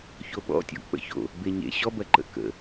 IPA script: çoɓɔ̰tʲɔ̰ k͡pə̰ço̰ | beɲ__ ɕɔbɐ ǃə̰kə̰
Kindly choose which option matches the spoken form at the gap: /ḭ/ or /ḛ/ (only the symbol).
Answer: ḛ